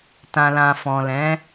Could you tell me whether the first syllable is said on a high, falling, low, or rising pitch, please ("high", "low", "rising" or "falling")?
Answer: low